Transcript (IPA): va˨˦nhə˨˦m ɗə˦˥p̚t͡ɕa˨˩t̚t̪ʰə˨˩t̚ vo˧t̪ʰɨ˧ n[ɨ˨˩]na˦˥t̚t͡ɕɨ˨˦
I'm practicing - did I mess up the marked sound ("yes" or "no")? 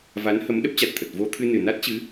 no